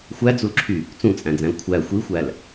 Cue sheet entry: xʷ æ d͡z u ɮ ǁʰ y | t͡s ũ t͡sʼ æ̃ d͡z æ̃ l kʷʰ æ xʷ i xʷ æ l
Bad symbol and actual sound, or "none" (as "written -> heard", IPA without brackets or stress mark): ɮ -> l